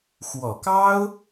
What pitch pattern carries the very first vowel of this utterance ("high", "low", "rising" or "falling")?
low